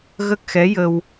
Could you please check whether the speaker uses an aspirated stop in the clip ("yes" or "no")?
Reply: no